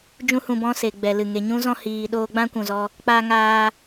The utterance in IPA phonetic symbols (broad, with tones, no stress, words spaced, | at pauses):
d͡ʒũ˦hũ˧bɔ̃˦ se˨ɡ͡bɛ˨lɨ˨ ŋe˨ɲũ˦zɔ̃˦ hiː˧ɗoː˦ ɡ͡bã˦kʷũ˨zɔ˧ | k͡paː˧ ŋaː˧